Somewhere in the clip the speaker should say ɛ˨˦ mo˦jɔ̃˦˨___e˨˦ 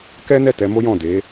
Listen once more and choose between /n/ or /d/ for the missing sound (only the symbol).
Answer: d